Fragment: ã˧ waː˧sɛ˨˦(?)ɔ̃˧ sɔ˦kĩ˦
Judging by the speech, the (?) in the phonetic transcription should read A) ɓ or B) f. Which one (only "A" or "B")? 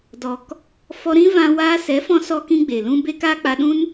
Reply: B